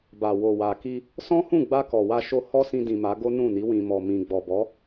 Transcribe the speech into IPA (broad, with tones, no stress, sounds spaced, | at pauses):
b a˨ w o˨ w a˨ k i˧ | s ɔ̃˦ h ũ˦˨ ɡ͡b a˧ k ɔ˨ w a˧ ʃ o˧ h ɔ˦ s ĩ˧ d ĩ˨ m a˨˦ ɡ o˦ n ũ˦˨ n i˨˦ w ĩ˧ m ɔ˧ m ĩ˧ ɡ͡b ɔ˨ b ɔ˨˦